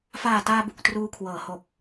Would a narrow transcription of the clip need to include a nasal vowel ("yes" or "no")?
no